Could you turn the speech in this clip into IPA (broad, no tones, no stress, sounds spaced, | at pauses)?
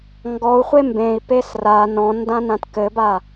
ŋ ɡ ɔ u̯ χʷ e m b ẽ i̯ p e s r a n ɔ̃ n d ã n ã t k ɘ b a